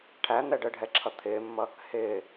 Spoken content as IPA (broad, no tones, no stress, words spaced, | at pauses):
ʈʰæn̪ɛ ɖəɖʱɛǁʰʌ t̪ʰɪːmːʌ | hɪː